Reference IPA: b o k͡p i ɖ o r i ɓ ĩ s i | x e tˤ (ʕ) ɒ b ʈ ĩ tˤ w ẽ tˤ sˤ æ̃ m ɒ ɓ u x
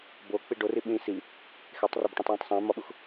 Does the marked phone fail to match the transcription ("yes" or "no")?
yes